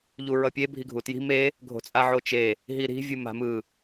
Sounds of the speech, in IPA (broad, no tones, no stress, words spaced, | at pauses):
ʎuɹʌpʲe bʱiɡʱutji̤ me | ɡʱo̤t͡sʼaʕot͡ʃe | ɦiɾi̤ vʲɯma̤mɯ